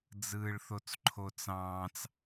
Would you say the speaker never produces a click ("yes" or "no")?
no